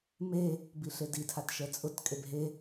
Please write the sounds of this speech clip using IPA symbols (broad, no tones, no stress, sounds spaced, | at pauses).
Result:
m e | b i ɬ e d i tʰ a t ʃ ɛ t͡sʼ ʊ t kʼ e b ɦ e